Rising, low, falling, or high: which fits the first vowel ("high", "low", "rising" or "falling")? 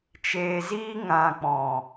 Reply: low